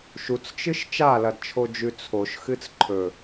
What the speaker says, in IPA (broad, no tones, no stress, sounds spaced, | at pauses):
ʃ u t͡s t͡ʃ ɨ ʃ t͡ʃ a l ɐ d t͡ʃʰ o d͡ʒ ʉ t͡sʰ o ʃ x ɨ t͡s ǃʰ ɵ